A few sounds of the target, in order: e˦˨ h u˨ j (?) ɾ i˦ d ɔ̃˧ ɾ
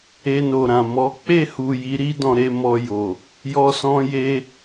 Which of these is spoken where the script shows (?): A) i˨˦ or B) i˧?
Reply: A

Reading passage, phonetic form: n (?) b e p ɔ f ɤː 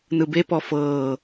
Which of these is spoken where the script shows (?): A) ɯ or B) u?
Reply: A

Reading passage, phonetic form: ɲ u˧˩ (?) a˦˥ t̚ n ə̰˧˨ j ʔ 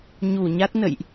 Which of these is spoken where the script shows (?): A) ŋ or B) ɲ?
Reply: B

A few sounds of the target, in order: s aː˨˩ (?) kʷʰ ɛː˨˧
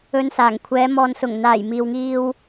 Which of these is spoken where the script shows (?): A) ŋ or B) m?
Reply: A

